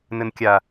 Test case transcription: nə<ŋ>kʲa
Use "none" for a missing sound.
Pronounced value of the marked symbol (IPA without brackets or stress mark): n